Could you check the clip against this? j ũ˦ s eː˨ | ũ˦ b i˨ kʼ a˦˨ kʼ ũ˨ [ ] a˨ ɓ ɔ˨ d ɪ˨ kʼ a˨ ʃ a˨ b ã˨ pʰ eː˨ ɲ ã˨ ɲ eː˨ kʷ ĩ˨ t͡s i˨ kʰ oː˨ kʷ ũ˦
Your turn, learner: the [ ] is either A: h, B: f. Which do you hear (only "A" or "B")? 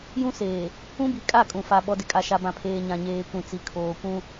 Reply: B